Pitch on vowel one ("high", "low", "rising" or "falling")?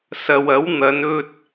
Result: low